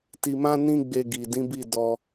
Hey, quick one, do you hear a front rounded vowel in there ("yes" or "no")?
no